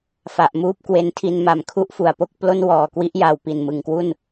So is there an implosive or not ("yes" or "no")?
no